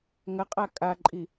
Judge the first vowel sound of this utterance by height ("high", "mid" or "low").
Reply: low